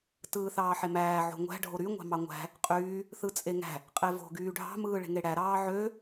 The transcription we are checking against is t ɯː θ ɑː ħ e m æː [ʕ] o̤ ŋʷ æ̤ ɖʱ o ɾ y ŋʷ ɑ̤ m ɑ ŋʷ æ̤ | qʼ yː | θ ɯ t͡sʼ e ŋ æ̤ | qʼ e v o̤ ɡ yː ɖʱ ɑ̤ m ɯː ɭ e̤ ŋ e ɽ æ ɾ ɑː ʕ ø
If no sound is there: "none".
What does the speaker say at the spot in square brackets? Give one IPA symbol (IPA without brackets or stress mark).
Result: ʕ